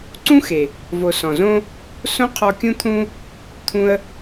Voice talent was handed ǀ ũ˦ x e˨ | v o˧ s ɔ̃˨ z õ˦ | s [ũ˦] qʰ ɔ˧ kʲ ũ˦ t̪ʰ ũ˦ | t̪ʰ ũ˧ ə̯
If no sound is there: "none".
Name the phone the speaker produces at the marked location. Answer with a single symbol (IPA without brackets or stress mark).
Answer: õ˦